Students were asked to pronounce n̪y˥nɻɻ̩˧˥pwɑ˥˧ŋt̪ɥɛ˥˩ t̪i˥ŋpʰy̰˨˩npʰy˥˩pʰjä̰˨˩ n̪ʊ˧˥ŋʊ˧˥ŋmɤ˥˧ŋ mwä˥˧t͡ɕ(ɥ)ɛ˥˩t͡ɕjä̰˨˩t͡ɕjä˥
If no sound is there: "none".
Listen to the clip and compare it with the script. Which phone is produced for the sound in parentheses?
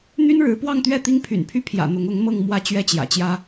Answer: ɥ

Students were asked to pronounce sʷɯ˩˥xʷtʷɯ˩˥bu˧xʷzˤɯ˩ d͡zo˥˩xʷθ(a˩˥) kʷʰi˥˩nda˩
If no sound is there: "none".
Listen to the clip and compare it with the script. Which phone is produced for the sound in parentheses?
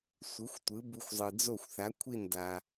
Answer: a˩˥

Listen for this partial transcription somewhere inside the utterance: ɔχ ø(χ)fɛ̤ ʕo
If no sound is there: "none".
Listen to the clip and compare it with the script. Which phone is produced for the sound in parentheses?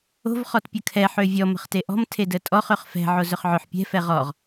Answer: χ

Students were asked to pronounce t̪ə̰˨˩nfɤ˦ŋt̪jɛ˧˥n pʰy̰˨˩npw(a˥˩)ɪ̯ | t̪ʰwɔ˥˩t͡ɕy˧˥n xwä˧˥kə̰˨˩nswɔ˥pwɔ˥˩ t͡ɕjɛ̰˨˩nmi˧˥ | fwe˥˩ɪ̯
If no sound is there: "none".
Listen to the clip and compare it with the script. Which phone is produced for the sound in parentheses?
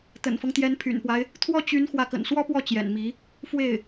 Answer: a˦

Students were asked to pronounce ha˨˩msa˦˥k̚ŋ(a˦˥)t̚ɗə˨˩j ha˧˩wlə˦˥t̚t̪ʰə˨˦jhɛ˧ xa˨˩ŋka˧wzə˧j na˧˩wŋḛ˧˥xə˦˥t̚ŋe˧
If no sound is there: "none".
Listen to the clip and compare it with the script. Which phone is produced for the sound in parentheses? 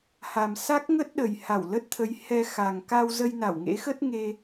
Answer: ə˦˥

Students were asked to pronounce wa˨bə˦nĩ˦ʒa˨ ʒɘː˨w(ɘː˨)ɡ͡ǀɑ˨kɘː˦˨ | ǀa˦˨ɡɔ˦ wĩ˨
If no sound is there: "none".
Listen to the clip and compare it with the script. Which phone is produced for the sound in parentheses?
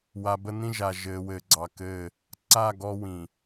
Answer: ɘː˨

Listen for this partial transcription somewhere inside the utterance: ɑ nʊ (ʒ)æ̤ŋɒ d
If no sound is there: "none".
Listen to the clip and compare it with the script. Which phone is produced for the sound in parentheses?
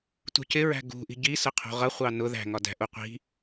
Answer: ð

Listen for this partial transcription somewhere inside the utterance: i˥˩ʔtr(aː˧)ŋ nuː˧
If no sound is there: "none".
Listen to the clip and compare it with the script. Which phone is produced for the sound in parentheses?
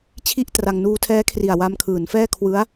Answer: a˧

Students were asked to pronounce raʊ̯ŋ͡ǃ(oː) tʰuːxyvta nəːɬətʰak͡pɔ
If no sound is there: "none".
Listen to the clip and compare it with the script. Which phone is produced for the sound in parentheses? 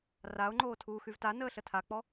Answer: oː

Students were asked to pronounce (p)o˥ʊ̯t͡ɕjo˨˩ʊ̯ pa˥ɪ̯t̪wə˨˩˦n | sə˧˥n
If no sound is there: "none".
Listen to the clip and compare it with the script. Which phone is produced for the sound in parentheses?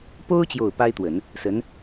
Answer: p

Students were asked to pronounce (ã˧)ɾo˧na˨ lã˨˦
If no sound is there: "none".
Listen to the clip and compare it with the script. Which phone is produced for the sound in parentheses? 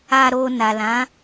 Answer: a˧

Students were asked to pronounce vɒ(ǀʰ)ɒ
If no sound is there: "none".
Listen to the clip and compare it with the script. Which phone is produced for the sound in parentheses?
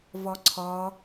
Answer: ǀʰ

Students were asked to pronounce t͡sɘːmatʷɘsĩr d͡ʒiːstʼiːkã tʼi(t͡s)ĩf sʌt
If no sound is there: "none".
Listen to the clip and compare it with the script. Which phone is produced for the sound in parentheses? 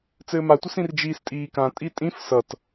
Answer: tʼ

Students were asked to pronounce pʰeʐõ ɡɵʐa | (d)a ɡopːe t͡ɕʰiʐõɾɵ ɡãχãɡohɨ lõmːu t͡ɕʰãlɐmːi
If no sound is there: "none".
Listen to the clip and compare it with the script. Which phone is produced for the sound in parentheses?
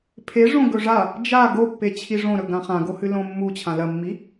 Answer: d͡ʒ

